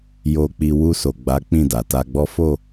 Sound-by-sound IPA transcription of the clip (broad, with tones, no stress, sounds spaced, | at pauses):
j o˧ k͡p i˧ w u˧ s o˨ ɡ͡b a˨˦ k͡p ĩ˦˨ d a˨ t a˧ ɡ͡b ɔ˦ f o˦˨